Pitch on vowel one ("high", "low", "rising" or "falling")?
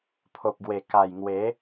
low